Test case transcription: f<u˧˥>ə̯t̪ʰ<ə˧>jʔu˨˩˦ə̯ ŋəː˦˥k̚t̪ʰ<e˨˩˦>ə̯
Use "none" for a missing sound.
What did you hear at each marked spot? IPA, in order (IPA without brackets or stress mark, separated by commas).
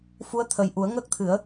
u˧˥, ə˨˩, ɨ˨˩˦